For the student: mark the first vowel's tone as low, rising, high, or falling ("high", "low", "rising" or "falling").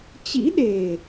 rising